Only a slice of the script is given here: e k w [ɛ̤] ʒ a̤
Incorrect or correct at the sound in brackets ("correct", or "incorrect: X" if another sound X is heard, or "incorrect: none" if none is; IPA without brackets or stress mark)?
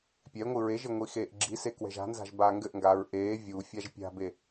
correct